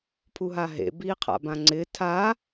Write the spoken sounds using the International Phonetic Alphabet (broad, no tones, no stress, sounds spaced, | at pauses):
pʰ u ɦ a ɦ ḛ b iː qʰ a̰ b ã ŋ͡ǀ ɪː tʰ a